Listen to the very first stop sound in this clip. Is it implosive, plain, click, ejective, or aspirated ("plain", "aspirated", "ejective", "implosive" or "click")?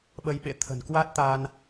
implosive